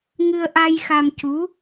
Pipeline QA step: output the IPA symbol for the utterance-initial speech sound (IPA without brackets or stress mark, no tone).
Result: ŋ